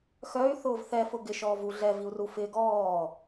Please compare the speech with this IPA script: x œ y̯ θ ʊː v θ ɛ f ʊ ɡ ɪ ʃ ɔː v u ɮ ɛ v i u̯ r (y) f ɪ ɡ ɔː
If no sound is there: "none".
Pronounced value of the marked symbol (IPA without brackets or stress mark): u